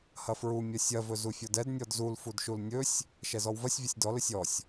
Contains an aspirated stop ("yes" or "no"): no